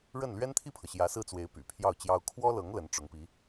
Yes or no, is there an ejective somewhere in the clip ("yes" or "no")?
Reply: no